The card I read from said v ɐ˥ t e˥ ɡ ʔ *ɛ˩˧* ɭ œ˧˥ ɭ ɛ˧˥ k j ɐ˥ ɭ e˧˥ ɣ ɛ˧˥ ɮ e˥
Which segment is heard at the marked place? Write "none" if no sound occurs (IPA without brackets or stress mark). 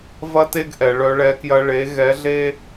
ɛ˩˧